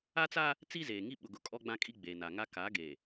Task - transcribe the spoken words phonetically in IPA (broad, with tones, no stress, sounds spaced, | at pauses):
a˦ t͡s aː˦ | t͡s i˦ z eː˨ ŋ i˦ ɓ ʊ˨ ɡ ʊ˨˦ kʼ ɔ˦ ɡ͡b ã˦ kʼ i˦ ɡ͡b eː˨ n a˨ ŋ a˦ k a˨˦ ɡ eː˨